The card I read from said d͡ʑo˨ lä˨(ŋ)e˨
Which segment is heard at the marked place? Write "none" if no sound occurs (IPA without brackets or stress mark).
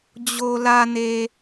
n